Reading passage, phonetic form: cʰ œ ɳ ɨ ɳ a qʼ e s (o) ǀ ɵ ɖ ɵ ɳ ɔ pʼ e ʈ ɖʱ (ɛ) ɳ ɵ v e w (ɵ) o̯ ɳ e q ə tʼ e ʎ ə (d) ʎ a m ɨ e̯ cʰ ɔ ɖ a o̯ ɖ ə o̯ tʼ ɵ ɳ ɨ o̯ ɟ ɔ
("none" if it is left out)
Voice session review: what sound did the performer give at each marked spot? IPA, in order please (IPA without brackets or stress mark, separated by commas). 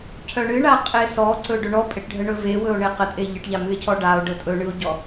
ɔ, ə, ɵ, ʈ